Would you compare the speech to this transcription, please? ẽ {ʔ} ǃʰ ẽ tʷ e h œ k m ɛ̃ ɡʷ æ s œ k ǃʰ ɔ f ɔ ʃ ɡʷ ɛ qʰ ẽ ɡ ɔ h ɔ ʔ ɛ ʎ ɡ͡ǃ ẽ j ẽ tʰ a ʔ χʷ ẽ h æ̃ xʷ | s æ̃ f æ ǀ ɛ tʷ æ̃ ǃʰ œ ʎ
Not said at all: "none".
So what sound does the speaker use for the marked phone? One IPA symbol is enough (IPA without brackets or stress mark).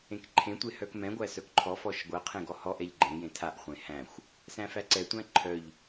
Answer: k